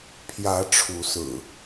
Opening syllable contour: rising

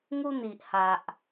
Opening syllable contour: high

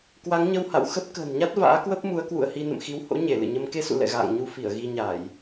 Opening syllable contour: rising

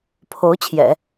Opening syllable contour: rising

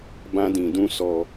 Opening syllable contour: high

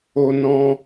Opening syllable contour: high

